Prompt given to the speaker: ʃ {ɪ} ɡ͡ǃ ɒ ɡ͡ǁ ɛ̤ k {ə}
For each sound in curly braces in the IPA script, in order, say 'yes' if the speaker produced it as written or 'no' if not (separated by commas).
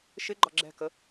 yes, yes